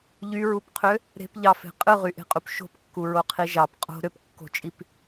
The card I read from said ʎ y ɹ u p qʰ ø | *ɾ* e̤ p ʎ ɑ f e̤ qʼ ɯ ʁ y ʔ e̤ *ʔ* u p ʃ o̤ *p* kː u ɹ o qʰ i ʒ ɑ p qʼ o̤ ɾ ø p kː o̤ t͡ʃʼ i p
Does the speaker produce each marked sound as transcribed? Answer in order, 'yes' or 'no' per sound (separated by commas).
yes, no, yes